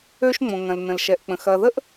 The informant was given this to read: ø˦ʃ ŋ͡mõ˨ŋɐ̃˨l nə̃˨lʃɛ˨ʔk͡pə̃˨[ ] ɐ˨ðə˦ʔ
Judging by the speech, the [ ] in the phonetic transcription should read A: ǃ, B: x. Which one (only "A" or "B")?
B